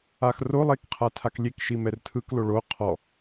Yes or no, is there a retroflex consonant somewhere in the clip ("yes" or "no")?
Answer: yes